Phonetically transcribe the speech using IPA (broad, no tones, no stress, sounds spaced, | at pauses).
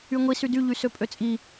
y ŋʷ i s y d y ʎ y s ø pʼ ø t͡sʼ i